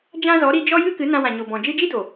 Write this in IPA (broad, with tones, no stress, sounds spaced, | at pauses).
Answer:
d͡ʒ ã˦ z ɔ˨˦ ɾ i˧ d͡ʒ ɔ˦ j ɨ˦ k ɨ˨˦ n ã˧ w ã˨ ɲ o˨ b ɔ̃˨ d͡ʒ ɨ˧ d͡ʒ i˦ d o˨